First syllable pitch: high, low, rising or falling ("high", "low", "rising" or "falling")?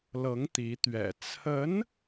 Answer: rising